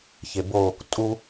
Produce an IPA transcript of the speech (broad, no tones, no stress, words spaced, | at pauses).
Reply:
çebo | tʼu